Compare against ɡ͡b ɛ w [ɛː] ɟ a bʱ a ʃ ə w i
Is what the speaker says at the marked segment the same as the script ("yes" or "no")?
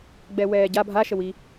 yes